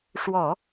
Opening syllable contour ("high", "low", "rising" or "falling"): low